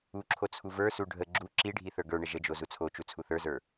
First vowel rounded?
yes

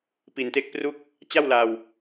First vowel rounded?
no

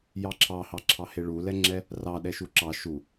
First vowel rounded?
no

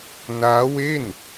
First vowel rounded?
no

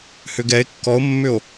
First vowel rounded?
yes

